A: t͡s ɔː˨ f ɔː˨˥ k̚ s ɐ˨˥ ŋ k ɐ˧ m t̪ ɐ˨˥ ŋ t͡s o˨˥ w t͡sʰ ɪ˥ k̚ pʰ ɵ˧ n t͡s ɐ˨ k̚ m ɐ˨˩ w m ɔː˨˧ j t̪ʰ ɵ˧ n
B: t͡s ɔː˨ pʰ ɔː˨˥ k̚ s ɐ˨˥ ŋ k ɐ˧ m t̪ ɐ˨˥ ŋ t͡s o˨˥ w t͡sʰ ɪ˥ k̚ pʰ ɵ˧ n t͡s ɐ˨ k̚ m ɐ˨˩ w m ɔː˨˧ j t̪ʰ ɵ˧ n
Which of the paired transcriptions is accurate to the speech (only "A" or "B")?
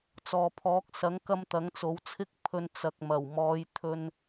B